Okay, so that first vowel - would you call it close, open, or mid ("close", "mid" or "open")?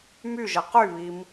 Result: close